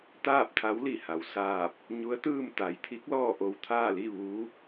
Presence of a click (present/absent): absent